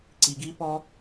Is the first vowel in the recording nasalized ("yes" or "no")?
no